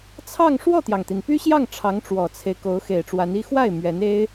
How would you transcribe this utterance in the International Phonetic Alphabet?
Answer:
t͡sʰɑ˥˧ŋ ʂwɔ˥˩t̪jɑ˩ŋt̪i˩n py˥ɕjɑ˥˩ŋ ʈ͡ʂʰɑ˧˥ŋʈ͡ʂwɔ˨˩t͡sʰe˦ɪ̯ ko˧˥ʊ̯xe˨˩ɪ̯ʈ͡ʂwa˧˥ni˥ xwa˥˩ɪ̯ mɥɛ˧˥ne˥ɪ̯

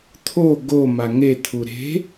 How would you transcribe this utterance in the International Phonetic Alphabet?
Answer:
t̪ʰo ɡo maŋe t̪ʰuɾe̤

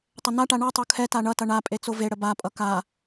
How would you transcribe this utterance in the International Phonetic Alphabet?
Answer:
tˤʌnaʈa ɳʌtˤo kʰɛta ɳʌtʌ ɳa pʼet͡soveɽə bapʼʌ ka

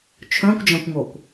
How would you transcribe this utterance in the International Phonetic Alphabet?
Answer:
t͡ʃʰœ̃kʷd͡ʒãkʷŋokʷ

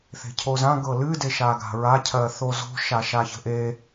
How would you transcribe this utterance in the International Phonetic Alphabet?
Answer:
θe̤cʰozã ɡɤlɨ deʃaɡa̤ɹa cʰɜθozo̤ ʃaʃaçə̤ʔe

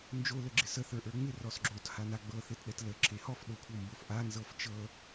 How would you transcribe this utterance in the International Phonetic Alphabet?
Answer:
nd͡ʒo ləɡ͡ǁɪsə θə˞ʔə˞ŋ͡mɪ rɔsɡ͡ǁot hanaɡ͡bɤ θetɗɛtlə ǁʰehɔf ɗokʷʰɤmbofʔa nzɤft͡ʃɤ

